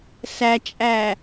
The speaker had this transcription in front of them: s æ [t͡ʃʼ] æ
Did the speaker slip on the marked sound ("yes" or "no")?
no